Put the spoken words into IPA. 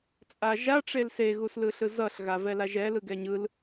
t͡sʼ a ʒ a ʈ͡ʂ e l s e ɣ u s l ɯ ɬ ɯ z ʌ ɬ ɣ a v ɛ l a ʒ ɛ l ɯ ɡ ɛ ɲ ɯ l

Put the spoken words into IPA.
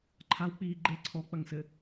ǃʰ a w k͡p iː ɡ͡ǃ e ǀʰ ɔ k͡p ɐ ŋ s ɘ

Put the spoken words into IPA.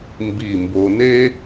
m b i˧˩ m b o˧ n e˥

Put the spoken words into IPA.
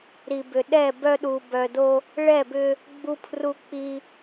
ɾ i˨ b ʏ˨ ɗ ɛ˦˨ b œ˦ ɗ u˨ b œ˨ d o˦ | ɭ ɛ˦˨ b ʏ˦ | ɡ͡b u˦ pʰ r u˦ k͡p i˦

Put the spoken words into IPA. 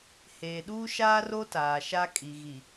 h eː˨ ɗ uː˦ ʃ aː˦ r o˦ t aː˨ ʃ a˦ kʼ i˨ ɣ i˨

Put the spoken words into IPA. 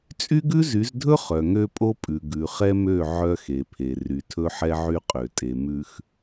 t͡sʼ y˦ ɡ ʉ˦ z y˨˦ z dʱ ɵ˦ χ œ˨ ŋ ø˦ pʼ o˦ pʼ ʉ˨ ɡ ʉ˨ χ ɛ˦ m ø˦˨ ʕ œ˦ x e˨ pʰ e˨ r y˨ tʰ ɵ˦ ħ ɛ˦ ʕ y˦ qʼ ø˨ tʼ e˨ m ʉ˨ x

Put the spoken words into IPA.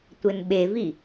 tʷ ɘ n ɓ e v i

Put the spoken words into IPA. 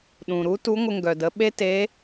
ɗ ũ˩ ɾ u˧˥ t u˧˥ ŋʷ ə˧ ŋ ɡ œ˩ d ə˩˧ ɓ e˥ t e˧˥

